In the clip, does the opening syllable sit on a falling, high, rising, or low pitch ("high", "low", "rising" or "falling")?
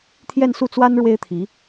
falling